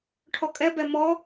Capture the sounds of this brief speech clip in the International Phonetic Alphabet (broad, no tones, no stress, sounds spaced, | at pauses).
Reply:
ʈʰ ɔ kʼ ɛ b ɛ m ɔ